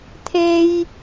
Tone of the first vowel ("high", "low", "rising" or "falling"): high